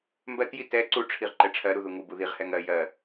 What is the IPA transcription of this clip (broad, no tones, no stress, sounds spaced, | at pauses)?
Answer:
m b ɜ t j i t ɛ ǀ u ʈ͡ʂʰ i ʁ ǃ ɛ ʈ͡ʂʰ ɜ ɾ u ð u ŋ u b u ð i ʁ h ɛ ŋ ɜ j ɜ